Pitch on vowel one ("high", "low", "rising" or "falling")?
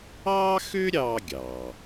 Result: high